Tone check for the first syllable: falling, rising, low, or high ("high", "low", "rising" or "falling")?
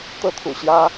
high